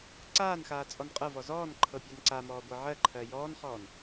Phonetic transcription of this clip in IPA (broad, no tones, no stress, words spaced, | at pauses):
ǀaːnxaː t͡sʼɔnqʼɤvɔ zɔːnǃʰɤ pʲanǀamɔː ɡʷɤʕɜǃʰɜ jɔːnχɔːn